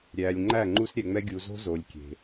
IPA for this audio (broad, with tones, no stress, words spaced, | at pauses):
ɾʲæː˨lʲŋ͡ǃæ˦˨ŋ͡ǃu˦s ɾʲɛ˨ŋ͡mɛ˦ ɡʲu˨zo̤˦ zo˨lʲ kʲe̤˨